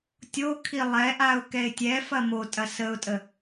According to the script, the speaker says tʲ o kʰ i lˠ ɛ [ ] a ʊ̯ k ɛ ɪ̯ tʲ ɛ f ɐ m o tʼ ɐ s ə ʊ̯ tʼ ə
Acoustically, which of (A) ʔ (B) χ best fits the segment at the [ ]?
A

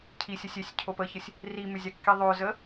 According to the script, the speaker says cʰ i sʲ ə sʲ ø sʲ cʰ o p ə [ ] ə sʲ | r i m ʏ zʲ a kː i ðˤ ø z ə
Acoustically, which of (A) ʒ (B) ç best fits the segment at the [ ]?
B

